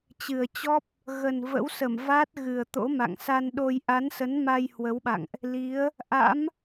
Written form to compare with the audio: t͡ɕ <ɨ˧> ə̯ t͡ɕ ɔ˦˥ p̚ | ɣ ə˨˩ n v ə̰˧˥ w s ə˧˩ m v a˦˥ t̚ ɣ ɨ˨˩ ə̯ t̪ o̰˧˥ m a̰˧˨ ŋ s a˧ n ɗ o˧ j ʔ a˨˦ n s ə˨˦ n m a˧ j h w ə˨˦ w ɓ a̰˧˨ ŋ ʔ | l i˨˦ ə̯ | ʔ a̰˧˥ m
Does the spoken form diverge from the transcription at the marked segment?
yes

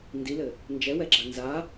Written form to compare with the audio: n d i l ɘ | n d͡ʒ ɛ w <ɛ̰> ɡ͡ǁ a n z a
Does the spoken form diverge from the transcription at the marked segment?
yes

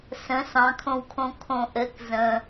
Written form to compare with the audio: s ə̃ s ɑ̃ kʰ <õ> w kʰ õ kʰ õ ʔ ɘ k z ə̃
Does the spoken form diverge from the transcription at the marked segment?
no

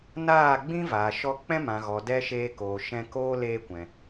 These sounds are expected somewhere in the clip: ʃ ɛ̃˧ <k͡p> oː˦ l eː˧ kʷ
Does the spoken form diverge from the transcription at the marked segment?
yes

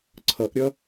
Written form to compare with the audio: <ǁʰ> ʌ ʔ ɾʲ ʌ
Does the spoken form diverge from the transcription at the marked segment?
yes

